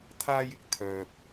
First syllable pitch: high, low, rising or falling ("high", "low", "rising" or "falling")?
high